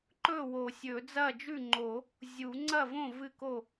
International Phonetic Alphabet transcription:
ǃ ɵ˥˩ w o˨˩˦ sʲ ɵ˨˩˦ d͡z ɐ˥˩ d͡ʒ ʉ˥˩ ŋ͡ǃ o˨˩˦ | zʲ u˨˩˦ ŋ͡ǀ ɐ˥˩ v õ˥˩ v ɨ˥˩ k o˥˩

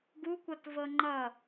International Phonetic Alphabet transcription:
ɡ u kʷ ʌ t v ɤ ŋ͡ǃ ʌ

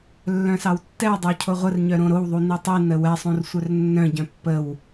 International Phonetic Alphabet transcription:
lː œ̃ s ɑ w tː ɛ w dˤ ə w cʰ o ʁʷ ə r ɲ œ ɾ õ ɾ o w ðˤ u n i tˤ i n ə w ɛ sˤ õ r sʷ œ r nː œ̃ ɟ œ̃ pː ə w

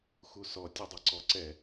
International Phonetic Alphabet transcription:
x u s ɔ tʲ u dˤ ɛ ǀ ɔ ǀ ɛ

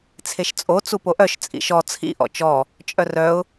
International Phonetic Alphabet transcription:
t͡sʰ e ʃ t͡sʼ o t͡s u p o ʔ œ ʃ t͡sʼ ḭ ʃ ɔ t͡sʰ ḭ ʔ ɔ̰ t͡ʃ ɔ | t͡ʃʼ œ r œ ʊ̯

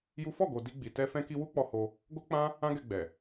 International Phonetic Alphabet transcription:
j u˦ f ɔ˦˨ ɡ o˨ d i˧ ɡ͡b i˨ t ɛ˧ f ɛ̃˧ k i˧ w u˦ k͡p ɔ˧ h o˧ | ɡ o˦ k͡p ã˦ | ã˦ ɡ ɛ˧ ɡ͡b ɛ˨

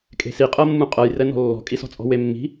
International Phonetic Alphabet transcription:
kʼ e̤ s i qʼ ɤ mː ũ qʼ ɤ j r ɛ n ɔ̤ lː ɔ̤ kʼ i s ɔ̤ t͡sʼ ɔ̤ w e mː i̤

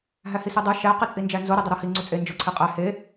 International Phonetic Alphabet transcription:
ɦ æ h i s i dˤ u ʃ æ q i t͡sʼ i n d͡ʒ æ n z o ɾ e dˤ o ɾ ɒ h i ŋ͡ǀ u t͡sʼ e n d͡ʒ o ǀʰ e qʼ æ h e

